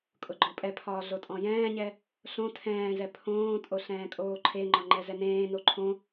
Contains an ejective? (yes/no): yes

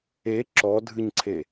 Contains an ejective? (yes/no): no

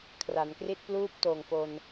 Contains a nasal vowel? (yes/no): no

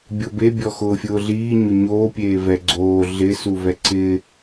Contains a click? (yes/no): yes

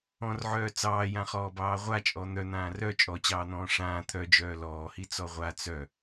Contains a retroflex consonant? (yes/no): yes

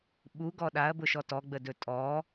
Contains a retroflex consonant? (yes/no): no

